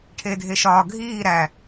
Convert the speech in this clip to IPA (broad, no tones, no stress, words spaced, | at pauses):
ʈʰeːdʱeʃɒː ɡʱiː ɾæ